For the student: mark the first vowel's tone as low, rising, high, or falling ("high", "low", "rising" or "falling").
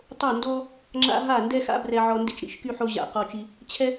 falling